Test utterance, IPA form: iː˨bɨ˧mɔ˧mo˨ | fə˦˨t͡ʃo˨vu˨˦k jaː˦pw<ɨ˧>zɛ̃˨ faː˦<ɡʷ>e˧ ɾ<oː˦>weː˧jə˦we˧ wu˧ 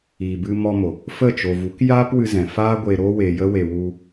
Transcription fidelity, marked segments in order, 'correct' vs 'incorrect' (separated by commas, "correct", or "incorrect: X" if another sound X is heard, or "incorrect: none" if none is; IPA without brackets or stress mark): correct, correct, correct